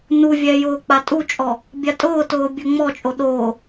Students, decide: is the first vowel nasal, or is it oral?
oral